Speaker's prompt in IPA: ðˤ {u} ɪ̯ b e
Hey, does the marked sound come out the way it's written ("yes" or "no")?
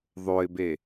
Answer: no